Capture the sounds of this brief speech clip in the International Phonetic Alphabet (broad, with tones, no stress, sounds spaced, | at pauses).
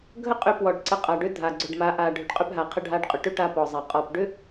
ɡʱ ə˦ qʼ ʏ˧ p w ɔ˨ ɖ ǀ ə˧ qʼ a˨ ɖ ʏ˦ dʱ a˨ ɡ͡ǀ ʏ˨ ɖ m a˨˦ ʔ a˨ ɖʱ ʏ˨ ɖ qʼ ʏ˧ p ɦ a˨ qʰ ə˧ ɖʱ a˧ ɖ qʼ ʏ˨ ʈ ʏ˦ ʈ a˧ p ɔ˨ zˤ a˨ qʼ ɔ˨ p ɖ ʏ˦